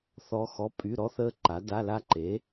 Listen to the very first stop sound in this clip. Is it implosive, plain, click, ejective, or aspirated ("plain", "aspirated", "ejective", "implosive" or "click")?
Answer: ejective